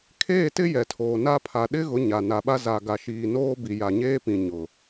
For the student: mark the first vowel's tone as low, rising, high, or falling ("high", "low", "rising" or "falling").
falling